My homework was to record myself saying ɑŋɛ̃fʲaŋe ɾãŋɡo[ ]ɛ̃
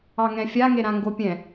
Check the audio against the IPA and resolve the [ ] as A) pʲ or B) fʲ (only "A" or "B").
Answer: A